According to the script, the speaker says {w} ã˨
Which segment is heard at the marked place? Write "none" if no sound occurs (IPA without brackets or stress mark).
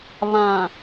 β